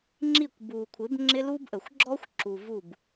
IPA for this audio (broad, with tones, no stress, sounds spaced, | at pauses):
ŋ͡ǁ i˦˨ kʷ b u˨ kʷʰ ɪ˨˦ b ŋ͡ǁ ɪ˦ l u˦ b ʔ ə˨ xʷ ɡ͡ǁ ɔ˦ xʷ ǁ u˨ v u˦˨ b